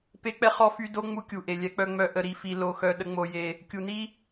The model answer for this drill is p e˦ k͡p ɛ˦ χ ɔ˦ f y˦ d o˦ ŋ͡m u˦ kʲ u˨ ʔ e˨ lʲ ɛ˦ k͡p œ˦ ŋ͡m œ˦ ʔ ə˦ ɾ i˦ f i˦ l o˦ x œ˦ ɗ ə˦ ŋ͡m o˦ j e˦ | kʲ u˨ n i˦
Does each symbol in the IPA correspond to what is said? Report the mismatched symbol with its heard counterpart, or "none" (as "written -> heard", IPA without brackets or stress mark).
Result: none